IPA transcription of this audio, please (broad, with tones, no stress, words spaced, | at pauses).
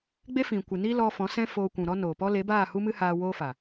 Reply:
ɡ͡be˦fĩ˨kʷɨ˨ni˦ lɔ˧ fɔ̃˨˦sɛ̃˦ foː˧kʷũ˨ɾɔ˦ noː˨pɔ˦ le˨˦baː˦˨ hu˦mɨ˦haː˧ woː˦fa˨